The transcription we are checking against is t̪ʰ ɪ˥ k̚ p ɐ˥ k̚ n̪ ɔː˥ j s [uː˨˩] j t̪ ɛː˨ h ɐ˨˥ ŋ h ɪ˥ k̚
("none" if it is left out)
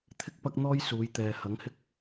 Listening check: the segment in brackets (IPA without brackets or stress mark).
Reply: uː˨˧